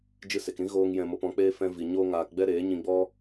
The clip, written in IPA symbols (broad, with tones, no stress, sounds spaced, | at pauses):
d͡ʒ ɨ˧ s e˨ k ɾ ĩ˦ ɣ oː˦ ŋ j ɛ̃˧ m o˧ p ɔ̃˨˦ k͡p eː˦ f ɛ̃˧ v i˨ ɲ oː˦ ŋ aː˧ k ɡ͡b ɛ˦ ɾ eː˨˦ ɲ ĩ˧ ɡ͡b ɔ˦